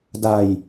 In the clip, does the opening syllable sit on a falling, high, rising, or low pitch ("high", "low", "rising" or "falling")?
low